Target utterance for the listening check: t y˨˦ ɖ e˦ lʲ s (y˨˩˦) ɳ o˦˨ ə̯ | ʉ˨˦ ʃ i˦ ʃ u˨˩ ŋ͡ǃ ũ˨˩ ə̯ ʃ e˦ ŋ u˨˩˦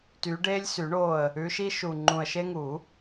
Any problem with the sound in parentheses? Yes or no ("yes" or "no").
no